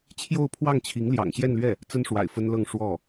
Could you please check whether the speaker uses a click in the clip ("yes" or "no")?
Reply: no